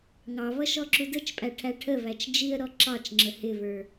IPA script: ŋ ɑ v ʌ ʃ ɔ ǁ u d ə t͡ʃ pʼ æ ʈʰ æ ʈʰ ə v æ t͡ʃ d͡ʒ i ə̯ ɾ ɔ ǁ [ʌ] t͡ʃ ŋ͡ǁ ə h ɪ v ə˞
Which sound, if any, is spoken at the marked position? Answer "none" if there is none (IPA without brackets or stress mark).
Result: ɑ